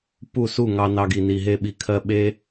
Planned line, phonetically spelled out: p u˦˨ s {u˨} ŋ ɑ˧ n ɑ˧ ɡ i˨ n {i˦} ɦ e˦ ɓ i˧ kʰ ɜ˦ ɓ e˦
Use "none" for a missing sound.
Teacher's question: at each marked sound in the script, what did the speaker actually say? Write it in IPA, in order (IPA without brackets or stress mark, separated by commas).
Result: u˦˨, i˨